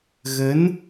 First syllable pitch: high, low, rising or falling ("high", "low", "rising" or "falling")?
rising